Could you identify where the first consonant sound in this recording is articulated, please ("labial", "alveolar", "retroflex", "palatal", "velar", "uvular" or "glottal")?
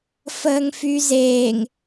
labial